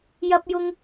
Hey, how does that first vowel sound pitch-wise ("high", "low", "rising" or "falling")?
high